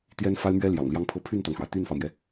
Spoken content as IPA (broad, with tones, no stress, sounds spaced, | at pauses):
t̪ j ɛ˥ n f a˥ ɪ̯ m ɥ ɛ˥ l j ɑ̰˨˩ ŋ l j ɑ˥ ŋ pʰ ɤ˥˧ pʰ y˥˩ n t̪ ɑ˩ ŋ ʂ w ä˩ t̪ y˥˩ n f ɑ˩ ʊ̯ m j ɛ˩